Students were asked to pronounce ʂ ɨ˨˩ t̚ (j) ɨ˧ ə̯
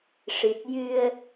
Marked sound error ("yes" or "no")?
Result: no